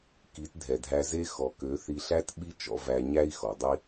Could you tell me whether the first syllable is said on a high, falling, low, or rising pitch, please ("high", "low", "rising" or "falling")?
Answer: rising